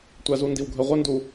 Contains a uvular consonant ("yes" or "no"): yes